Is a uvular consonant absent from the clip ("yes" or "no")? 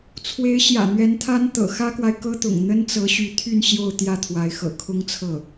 yes